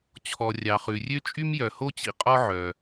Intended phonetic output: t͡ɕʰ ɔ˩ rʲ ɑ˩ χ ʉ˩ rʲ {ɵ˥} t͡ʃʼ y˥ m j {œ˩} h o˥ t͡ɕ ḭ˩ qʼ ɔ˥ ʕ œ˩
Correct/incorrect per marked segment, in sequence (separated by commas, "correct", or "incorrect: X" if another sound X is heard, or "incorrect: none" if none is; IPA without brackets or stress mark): incorrect: ø˥, correct